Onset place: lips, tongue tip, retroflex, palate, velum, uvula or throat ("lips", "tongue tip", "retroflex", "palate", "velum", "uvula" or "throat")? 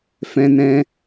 lips